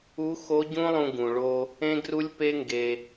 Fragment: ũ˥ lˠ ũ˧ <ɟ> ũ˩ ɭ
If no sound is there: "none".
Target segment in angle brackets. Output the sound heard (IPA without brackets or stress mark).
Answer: ɡ